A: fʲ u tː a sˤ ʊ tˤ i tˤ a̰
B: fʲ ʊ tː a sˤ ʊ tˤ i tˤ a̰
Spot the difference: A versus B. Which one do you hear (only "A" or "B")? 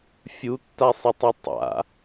A